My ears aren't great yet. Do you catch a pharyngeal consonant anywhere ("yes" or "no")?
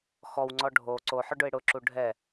yes